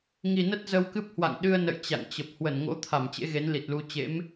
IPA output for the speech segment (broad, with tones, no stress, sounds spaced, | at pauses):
ŋ i˨˩ n ə˦˥ t̚ z ə˧ w k ɨ˦˥ p̚ h w a̰˧˨ ŋ ɗ ɨ˧ ə̯ n ə̰˧˨ j t͡ɕ a̰˧˨ ŋ t͡ɕ ə˨˩ p̚ h w ə˧˩ n ŋ o̰˧˥ t̪ʰ a˧˩ m t͡ɕ ḛ˧˥ ɣ e˨˦ n l i˨˩ t̚ l u˧ t͡ɕ ḛ˧˥ m